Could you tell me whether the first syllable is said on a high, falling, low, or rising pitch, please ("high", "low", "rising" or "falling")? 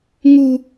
high